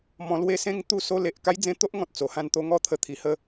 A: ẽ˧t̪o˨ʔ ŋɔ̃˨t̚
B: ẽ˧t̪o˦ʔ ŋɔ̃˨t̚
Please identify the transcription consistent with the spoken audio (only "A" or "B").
B